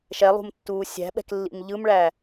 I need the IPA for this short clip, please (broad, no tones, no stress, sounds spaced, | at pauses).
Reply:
ʃ ɛ lˠ ṳ m tː uː sʲ æ̤ ɓ ɛ̤ k lː ḭ m ʎ ɯ m ɭ æ